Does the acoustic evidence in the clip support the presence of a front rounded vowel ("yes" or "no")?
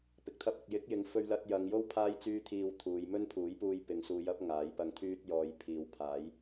yes